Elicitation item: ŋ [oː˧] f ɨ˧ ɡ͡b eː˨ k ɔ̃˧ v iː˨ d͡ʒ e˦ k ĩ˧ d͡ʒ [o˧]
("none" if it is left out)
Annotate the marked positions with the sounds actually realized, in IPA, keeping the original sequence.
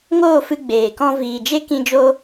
oː˦˨, o˦

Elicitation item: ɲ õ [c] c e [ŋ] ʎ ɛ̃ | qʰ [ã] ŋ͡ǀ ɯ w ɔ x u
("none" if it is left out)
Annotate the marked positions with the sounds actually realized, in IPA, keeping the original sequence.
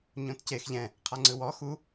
t, x, a

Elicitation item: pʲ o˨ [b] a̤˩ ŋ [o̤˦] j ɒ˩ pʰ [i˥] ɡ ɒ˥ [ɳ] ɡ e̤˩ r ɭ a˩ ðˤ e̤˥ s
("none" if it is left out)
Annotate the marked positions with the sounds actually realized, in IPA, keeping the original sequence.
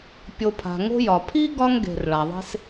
pʰ, o̤˦, i˥, ŋ

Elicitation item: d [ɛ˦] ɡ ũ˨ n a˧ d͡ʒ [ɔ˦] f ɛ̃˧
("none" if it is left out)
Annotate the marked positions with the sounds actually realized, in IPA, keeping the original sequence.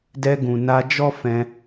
ɛ˧, ɔ˦

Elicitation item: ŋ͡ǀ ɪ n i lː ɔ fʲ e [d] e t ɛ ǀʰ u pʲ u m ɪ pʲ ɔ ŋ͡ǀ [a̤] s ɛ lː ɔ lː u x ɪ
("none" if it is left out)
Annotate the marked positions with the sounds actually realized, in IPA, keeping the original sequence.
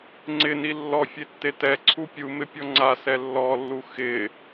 tː, a

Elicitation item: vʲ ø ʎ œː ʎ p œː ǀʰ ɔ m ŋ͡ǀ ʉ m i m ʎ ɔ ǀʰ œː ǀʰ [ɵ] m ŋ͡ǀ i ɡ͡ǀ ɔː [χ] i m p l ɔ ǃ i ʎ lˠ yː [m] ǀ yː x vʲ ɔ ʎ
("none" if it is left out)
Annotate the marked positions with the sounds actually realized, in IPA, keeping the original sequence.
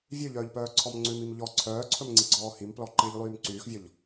ɵ, h, m

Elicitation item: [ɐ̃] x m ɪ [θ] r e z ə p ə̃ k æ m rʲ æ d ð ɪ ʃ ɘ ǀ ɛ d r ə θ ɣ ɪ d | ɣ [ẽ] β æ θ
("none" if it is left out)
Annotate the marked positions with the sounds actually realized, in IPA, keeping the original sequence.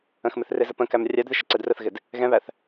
ə̃, θ, ɛ̃

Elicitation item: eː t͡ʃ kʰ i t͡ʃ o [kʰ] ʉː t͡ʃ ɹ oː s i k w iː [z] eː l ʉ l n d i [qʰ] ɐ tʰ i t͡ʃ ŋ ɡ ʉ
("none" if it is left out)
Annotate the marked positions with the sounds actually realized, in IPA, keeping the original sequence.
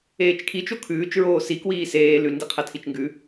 kʰ, s, qʰ

